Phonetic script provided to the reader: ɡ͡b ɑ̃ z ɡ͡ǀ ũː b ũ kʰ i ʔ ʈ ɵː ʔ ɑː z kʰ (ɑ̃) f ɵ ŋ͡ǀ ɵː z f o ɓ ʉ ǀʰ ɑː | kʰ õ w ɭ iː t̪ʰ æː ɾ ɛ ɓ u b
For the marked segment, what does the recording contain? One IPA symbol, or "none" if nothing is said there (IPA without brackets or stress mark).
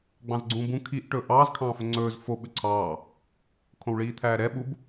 ɑ̃ː